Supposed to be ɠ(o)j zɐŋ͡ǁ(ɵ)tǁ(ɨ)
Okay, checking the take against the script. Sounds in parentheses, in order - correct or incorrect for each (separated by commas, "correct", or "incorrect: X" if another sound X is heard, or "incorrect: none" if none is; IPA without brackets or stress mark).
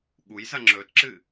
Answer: incorrect: u, correct, correct